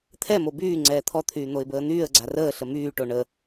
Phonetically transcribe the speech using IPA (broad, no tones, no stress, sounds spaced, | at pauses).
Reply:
t̪ʰ ɛ m o b yː ŋ͡ǀ ɛː t̪ʰ ɔ t̪ʰ yː n̪ o ɪ̯ b əː n̪ yː ə̯ ɡ͡ǀ a r əː ɬ ə m yː ʈ o ɳ ə